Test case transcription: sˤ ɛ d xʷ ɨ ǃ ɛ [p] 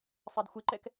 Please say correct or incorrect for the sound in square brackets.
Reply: incorrect